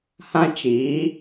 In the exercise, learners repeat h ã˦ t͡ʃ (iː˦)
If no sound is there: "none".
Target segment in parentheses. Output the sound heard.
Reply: iː˨˦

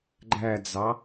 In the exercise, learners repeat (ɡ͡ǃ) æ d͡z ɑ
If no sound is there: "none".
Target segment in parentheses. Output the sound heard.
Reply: ɡ͡ǃ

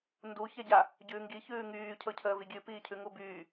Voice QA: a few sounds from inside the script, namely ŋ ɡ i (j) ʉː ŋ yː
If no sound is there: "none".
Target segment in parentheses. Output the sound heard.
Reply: ç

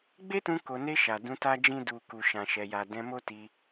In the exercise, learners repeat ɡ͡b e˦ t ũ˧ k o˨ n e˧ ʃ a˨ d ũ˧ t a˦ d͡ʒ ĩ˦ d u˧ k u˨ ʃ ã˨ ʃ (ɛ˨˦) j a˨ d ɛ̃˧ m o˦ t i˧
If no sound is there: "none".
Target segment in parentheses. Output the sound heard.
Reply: ɛ˨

